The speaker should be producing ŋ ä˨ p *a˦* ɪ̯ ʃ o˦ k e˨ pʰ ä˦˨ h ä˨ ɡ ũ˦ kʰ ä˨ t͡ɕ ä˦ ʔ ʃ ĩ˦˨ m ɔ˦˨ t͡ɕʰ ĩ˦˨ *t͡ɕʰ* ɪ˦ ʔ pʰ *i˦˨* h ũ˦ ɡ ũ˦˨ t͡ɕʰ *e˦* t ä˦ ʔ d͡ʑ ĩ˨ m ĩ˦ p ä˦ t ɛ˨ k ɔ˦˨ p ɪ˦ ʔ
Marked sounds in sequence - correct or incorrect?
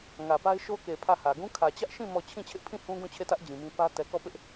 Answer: correct, correct, incorrect, incorrect

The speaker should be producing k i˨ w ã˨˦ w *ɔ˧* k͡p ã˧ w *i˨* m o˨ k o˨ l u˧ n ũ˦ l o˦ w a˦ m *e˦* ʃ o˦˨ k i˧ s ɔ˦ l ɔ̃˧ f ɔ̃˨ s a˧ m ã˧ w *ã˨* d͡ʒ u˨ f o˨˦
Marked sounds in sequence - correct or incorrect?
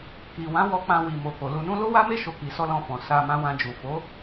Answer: correct, correct, correct, incorrect

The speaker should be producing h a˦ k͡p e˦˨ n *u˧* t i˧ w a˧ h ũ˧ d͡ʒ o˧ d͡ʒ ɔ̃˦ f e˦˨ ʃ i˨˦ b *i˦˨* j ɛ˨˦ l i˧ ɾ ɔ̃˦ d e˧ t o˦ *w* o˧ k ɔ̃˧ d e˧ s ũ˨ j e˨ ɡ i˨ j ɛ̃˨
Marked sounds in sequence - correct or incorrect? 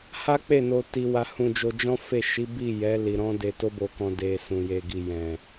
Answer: incorrect, correct, incorrect

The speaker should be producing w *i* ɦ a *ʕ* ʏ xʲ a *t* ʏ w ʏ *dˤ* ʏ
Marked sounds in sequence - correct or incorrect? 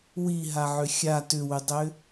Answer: correct, correct, correct, correct

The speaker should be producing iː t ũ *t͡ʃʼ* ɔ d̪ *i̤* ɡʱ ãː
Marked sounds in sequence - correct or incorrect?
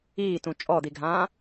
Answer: correct, incorrect

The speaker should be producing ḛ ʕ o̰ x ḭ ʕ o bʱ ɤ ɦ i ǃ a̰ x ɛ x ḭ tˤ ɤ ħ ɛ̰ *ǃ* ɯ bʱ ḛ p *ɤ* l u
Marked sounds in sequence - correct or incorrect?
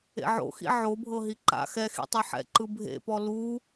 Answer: correct, incorrect

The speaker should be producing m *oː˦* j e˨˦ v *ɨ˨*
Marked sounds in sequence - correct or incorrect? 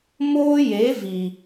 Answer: correct, incorrect

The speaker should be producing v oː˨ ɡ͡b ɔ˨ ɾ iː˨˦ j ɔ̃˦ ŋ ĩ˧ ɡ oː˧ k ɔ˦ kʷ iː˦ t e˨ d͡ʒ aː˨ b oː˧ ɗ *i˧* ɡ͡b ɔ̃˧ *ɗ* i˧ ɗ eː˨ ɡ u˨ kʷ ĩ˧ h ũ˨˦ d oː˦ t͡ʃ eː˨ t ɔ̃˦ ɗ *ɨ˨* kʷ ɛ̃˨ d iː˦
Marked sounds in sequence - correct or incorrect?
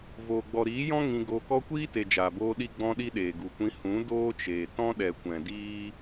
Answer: correct, correct, incorrect

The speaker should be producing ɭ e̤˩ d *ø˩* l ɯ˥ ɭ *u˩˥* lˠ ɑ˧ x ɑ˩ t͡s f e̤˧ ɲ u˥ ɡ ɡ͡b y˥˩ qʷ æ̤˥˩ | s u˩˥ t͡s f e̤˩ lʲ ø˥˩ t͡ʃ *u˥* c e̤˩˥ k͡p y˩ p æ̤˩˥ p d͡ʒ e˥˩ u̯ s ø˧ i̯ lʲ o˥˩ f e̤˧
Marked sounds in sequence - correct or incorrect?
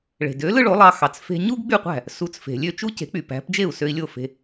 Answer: incorrect, incorrect, correct

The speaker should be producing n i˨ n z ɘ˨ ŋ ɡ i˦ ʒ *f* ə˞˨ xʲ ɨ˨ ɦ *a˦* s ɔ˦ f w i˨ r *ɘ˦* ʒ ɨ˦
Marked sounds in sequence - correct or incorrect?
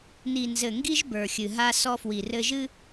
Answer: incorrect, correct, correct

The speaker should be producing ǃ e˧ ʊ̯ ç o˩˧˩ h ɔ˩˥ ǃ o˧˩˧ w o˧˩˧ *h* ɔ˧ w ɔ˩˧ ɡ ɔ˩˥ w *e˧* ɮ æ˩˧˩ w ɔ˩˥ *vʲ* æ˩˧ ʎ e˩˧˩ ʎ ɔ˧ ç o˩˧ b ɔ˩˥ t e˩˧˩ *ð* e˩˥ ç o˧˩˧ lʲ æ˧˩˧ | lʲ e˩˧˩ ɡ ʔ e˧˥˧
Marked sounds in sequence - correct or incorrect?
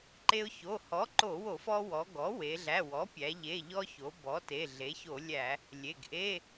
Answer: incorrect, incorrect, incorrect, incorrect

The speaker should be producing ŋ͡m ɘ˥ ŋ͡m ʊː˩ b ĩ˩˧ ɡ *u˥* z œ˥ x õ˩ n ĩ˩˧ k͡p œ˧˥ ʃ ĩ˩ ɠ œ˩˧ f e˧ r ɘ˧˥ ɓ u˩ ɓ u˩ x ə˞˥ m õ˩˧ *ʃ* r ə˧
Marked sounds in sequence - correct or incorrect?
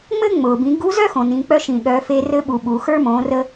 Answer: incorrect, incorrect

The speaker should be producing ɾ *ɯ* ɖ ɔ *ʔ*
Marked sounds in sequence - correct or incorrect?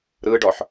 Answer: correct, incorrect

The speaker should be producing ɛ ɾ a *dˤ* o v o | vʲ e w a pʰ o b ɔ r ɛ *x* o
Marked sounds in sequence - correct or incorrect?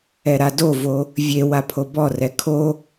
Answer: incorrect, incorrect

